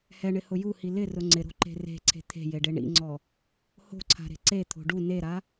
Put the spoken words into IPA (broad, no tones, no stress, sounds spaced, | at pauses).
h ɛ ɳ ɪ h ʊ j u h i l ɪ r ʊ ŋ͡ǀ ɪ ɾ o̤ ǃ e̤ r e̤ ǀʰ e̤ t̪ʰ e̤ j e ɖ e ɳ ḭ ŋ͡ǀ ɔ | h o̤ ǀʰ a̤ ɾ e̤ ǀ e t̪ʰ o̤ ɖ u n e ɾ a